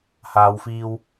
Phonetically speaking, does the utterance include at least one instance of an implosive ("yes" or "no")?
no